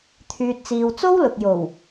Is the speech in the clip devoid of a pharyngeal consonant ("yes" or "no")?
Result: yes